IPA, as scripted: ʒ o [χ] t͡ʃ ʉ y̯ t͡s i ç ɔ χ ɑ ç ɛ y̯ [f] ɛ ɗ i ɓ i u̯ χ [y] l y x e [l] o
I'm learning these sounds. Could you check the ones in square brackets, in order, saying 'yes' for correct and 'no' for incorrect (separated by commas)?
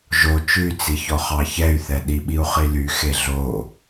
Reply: no, no, no, no